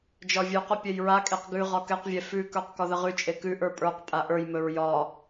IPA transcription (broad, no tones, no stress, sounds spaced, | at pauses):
d͡ʒ ɒ vʲ ʉ q ɵ pʲ ɛ j ɹ a kʼ e q ɡ ʉ ʁ ɒ k ɛ q vʲ ɛ f ʉ k ə˞ q k ɒ ð ə ʁ ʉ t͡ʃʼ e k ʉ ʔ ə˞ pʼ ə˞ q pʼ a ʔ ə˞ j m ɵ ɹ j ɒ